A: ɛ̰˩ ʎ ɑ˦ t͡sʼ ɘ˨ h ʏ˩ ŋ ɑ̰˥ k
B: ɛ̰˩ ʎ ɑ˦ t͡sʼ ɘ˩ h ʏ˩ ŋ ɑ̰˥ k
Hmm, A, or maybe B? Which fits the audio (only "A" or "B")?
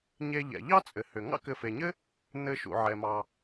B